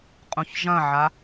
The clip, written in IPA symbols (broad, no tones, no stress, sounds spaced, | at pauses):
qʼ ũ ç ʒ ɐ̃ ʕ a